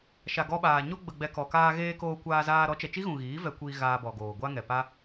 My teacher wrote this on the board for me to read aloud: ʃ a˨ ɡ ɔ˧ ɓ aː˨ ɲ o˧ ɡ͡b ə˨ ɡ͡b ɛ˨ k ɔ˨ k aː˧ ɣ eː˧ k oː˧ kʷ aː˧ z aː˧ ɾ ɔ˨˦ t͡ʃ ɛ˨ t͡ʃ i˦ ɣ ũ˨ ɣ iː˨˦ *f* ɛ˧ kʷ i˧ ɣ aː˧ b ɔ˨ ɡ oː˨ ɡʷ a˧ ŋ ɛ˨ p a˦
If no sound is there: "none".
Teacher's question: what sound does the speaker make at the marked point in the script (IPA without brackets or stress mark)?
v